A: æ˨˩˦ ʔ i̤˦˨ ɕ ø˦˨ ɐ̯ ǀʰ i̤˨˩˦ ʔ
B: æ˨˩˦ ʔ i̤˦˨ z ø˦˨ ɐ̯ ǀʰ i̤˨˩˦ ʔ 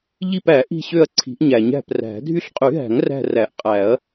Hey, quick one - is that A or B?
A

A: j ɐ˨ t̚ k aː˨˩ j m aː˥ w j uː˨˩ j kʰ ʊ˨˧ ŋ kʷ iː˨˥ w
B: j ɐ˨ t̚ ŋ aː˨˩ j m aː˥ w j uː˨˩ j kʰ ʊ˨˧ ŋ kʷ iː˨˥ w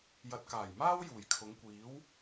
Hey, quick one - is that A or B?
A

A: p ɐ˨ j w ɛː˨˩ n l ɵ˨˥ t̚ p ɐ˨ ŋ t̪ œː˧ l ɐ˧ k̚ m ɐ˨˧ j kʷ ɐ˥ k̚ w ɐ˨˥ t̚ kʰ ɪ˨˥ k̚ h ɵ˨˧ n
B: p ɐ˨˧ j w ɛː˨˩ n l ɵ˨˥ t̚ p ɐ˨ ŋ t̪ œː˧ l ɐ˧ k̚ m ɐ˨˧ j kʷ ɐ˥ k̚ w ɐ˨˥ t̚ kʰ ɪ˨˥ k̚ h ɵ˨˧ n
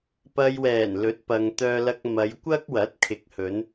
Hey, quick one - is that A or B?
A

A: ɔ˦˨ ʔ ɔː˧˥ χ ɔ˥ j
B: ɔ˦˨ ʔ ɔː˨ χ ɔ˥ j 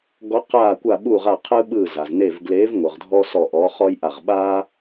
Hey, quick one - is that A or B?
A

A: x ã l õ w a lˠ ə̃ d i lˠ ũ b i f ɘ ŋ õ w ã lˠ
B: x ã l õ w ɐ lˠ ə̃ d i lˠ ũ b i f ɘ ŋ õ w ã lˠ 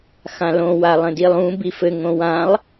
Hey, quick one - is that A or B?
A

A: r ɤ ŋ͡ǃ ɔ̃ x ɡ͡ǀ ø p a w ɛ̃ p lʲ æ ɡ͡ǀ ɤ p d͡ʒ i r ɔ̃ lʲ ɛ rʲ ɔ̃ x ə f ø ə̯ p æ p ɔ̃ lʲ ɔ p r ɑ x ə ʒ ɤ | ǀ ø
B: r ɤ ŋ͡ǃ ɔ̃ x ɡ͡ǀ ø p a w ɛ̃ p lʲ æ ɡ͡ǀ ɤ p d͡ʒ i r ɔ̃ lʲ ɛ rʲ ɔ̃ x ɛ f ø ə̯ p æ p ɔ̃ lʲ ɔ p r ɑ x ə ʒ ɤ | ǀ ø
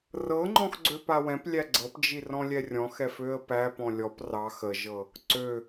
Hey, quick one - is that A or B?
B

